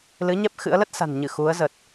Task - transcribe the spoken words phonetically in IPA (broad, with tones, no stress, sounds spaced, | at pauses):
l ɨ˨˦ ɲ ɛ˦˥ p̚ x ɨ̰˧˥ ə̯ l ə˦˥ t̚ s a̤˨˩ n ɲ ɨ˧˩ x u˨˦ ə̯ z ə˨˩ t̚